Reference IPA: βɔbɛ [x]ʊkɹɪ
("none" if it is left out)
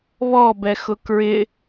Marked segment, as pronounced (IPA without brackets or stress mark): x